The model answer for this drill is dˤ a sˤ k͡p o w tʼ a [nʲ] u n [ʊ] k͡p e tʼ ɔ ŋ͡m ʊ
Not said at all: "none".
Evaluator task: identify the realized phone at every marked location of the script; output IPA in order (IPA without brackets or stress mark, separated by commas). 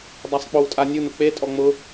nʲ, ʊ